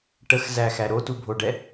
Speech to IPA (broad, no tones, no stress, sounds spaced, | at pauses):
ʈ ə x z æ x æ ɾ o t u bʱ o ɖ ɛ